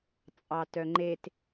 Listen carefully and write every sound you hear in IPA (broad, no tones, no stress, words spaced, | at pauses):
t͡sʼɑtœŋ͡ǃet